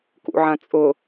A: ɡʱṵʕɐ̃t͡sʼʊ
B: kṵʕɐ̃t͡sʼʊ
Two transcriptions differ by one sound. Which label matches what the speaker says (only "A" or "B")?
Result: B